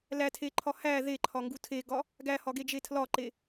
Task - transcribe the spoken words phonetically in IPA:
l æ tʰ e ǃʰ ɒ h æ ð e ǃʰ ɒ ŋ ɡ u tʰ e ɡ ɒ | ɡ æ h ɒ ɡ e d͡ʒ e tʰ l ɒ ǃ e

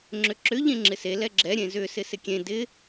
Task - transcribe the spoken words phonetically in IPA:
ŋ͡ǁ ʏ ǁ ʏ ʎ ẽ ŋ͡ǁ ɪ s e l ɛ ɡ͡ǁ ɛ ɾʲ ẽ z ʏ s ɪ s ɪ kʲ ẽ d ɪ

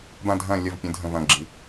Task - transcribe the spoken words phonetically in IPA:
b ã˦˨ dʱ ɐ̃˦˨ lʲ ɐ˦˨ v pʲ ə̃˨˥ dʱ ə̃˦˨ v ɐ̃˦˨ ɡ͡ǁ i˨˥

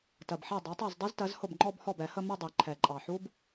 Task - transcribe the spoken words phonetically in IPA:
t ɜ˨˩ b ħ ɛ˥˩ dˤ ɑ˩˥ tˤ ɜ˥˩ z dˤ i˦˥ z t ɜ˩˥ z h ʊ˥˩ b ŋ͡ǃ ɔ˥˧ b h ɔ˥˩ b ɛ˨˩˦ h ə˥˧ m ə˥˧ dˤ i˨˩ ǃʰ ɛ˨˩ ǃʼ ɑ˨˩ ħ u˦˥ b

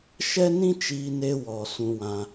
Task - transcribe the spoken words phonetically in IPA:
ʃ ɛ˦ n ĩ˦ t͡ʃ iː˧ n e˧ w ɔ˨ s ũ˧ w ã˧

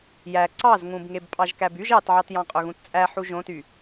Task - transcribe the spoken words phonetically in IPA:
j æ ǀ ɑ z ŋ ũ b ŋ e b pʼ ɑ ʒ k æ b y ʒ ɑ t ʕ ɑ t j ɑ̃ qʼ ø ɣ ũ t t͡sʼ æ ħ u ʒ õ t y

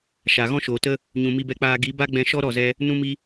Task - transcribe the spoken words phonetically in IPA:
ʃ a˨ ɣ ɔ̃˦ ʃ oː˨ t ə˦ | ɲ ũ˨ m i˧ b ɛ˧ k͡p aː˧ ɡ i˨˦ b a˦ ɡ͡b ɛ̃˧ ʃ ɔ˦ ɾ ɔ˦˨ z ɛ˧ | n ũ˦ m i˦

